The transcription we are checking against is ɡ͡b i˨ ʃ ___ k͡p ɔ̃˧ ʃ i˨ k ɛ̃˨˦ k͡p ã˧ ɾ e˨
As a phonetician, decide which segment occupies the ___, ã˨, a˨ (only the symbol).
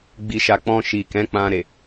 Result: a˨